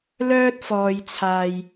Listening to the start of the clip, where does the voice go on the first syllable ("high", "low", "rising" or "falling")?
high